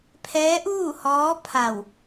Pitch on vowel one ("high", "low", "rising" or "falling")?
rising